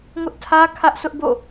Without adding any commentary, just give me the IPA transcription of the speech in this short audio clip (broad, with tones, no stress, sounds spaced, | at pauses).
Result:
ŋ ʊ˦ ʔ tʰ ä˦ kʰ ä˦ ʔ s ʊ˦ ʔ b o̰˦˨